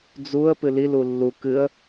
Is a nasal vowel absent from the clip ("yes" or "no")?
yes